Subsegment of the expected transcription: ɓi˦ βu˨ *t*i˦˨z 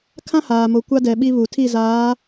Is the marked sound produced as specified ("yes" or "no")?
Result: no